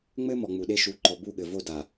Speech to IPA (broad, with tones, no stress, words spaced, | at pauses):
ŋ͡mɘ˦ mɔ˨ŋ͡mu˨ɗe˦ʃu˨˦ ǃɔ˨bu˦˨ɠɘ˨vo˦˨ da˨